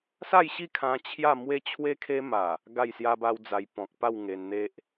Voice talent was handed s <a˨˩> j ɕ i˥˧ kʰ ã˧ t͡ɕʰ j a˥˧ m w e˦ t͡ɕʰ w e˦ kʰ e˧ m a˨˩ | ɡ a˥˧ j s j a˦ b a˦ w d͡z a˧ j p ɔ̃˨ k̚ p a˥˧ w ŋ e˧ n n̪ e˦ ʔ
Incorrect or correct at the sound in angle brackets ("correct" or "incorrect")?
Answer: incorrect